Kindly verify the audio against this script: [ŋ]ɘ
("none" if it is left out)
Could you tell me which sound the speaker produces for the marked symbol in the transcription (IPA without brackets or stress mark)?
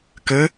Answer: k